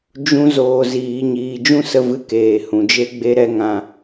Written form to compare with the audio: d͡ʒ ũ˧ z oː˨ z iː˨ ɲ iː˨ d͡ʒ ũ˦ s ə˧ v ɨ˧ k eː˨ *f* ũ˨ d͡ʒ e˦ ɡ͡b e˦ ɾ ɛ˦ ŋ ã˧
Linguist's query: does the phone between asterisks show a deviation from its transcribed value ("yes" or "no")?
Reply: yes